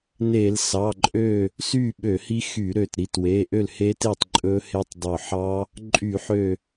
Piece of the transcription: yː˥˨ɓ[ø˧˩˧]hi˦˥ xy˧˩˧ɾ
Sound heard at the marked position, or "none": ø˧˩˧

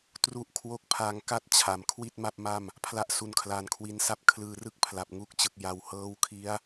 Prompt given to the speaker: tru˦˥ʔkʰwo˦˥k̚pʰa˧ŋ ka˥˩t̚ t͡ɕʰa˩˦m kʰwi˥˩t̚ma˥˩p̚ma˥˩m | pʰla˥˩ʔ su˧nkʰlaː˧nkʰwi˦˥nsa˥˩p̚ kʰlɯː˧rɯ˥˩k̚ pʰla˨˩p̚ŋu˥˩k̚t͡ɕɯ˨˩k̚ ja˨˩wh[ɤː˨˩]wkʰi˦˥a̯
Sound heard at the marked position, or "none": ɤː˦˥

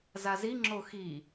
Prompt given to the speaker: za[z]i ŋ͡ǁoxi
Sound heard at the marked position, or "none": z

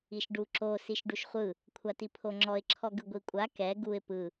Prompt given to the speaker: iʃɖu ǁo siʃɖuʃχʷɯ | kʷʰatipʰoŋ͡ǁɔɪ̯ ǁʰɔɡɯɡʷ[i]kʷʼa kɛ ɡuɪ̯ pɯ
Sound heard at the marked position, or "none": i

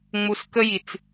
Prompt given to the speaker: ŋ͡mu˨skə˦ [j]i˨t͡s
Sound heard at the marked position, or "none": j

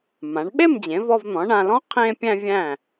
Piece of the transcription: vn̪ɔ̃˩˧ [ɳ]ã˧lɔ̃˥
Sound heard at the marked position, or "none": ɳ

